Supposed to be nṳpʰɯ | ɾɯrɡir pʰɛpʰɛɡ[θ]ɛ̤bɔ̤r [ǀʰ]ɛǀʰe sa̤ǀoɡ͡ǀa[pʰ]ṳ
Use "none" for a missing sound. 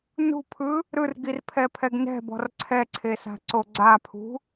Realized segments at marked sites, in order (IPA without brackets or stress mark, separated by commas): n, ǀʰ, pʰ